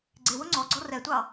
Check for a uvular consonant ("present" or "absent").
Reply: absent